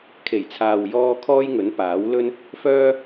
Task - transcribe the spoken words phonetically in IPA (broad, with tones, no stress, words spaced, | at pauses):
kʰe˨˩jt͡sʰaː˨w jɔː˧ kʰɔː˥jŋɵ˨˥n paː˨˥wlɵ˥n | fœː˥